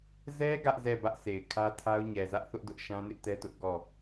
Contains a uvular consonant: no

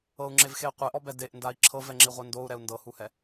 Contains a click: yes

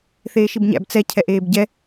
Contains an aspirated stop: yes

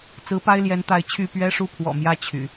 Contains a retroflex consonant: yes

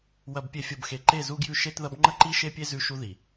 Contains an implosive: no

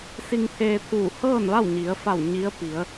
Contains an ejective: no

